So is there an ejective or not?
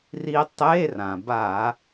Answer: no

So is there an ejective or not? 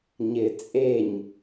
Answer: yes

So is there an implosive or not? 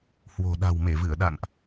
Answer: yes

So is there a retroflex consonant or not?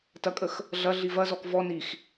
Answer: no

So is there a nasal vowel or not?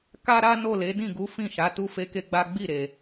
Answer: yes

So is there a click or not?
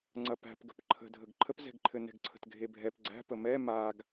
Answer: yes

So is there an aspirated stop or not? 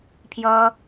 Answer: yes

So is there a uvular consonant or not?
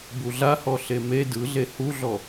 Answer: no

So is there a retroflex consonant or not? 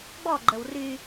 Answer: no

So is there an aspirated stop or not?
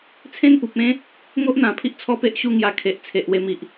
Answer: yes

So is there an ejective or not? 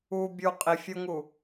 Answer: yes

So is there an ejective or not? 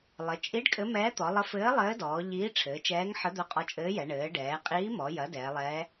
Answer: yes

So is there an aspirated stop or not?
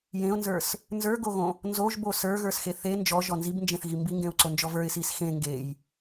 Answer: no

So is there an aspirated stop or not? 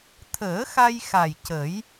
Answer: yes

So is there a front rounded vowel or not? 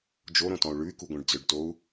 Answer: yes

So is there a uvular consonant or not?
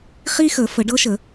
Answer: yes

